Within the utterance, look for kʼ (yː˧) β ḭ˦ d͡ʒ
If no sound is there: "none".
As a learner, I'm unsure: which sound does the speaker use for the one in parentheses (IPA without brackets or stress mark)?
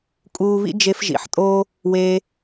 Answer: uː˧